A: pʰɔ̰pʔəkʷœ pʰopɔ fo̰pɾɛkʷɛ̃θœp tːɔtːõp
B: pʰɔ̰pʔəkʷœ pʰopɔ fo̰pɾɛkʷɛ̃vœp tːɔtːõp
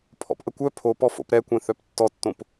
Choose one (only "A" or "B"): A